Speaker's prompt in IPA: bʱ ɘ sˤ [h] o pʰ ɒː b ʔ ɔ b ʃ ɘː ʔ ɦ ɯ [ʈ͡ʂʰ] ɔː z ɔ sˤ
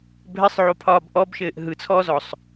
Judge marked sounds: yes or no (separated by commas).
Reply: no, no